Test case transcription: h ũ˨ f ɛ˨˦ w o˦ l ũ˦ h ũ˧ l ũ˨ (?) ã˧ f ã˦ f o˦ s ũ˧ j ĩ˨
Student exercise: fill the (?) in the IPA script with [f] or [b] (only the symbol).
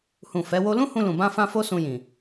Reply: b